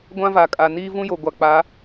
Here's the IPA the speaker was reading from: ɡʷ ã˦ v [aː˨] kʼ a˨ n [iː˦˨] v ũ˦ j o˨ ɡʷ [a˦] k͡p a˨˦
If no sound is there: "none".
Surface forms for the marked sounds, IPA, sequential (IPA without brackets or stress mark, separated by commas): a˨, iː˦, a˨